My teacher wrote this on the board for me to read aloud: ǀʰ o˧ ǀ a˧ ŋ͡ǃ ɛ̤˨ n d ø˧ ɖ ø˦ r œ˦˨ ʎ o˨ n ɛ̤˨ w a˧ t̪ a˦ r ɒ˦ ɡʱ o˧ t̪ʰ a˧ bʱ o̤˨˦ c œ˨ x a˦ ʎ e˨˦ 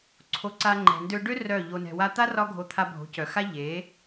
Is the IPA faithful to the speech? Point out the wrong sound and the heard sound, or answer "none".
none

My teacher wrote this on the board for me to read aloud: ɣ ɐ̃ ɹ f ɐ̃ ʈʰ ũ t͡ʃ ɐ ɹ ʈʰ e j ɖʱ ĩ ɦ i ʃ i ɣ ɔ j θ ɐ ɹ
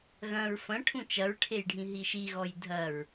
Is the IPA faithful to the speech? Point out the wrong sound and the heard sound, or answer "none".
θ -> dʱ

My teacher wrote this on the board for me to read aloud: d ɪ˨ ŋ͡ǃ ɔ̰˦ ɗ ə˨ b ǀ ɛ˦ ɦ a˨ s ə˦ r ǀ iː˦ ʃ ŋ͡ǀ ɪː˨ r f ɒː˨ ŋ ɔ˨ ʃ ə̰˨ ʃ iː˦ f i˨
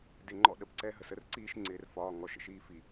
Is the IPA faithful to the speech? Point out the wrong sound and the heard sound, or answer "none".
a˨ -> ə˨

